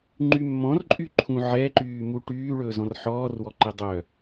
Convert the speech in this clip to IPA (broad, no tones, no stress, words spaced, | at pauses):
ŋ͡ǃymːɔ̃rǃʼyǃʰũ ʕɛǃyːmu ʈyːɭɵː zɔ̃rħɔːrwɔǃe dˤœ